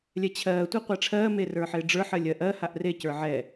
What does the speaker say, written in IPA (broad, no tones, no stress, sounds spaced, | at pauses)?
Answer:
lʲ ɛ t͡ɕʰ ɜː tʷ a qʷ æ ʈ͡ʂʰ ɜː m e r ə˞ ħ ɪː ɖ͡ʐ ə˞ ħ ɜ lʲ ɜ ʔ ɜ h a ʔ r e c ə˞ ʕ ɛ